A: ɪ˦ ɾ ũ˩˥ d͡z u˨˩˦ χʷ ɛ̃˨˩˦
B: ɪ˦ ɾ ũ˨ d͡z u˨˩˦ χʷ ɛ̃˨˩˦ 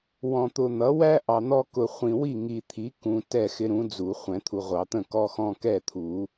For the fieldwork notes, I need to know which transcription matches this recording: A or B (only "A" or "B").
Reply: A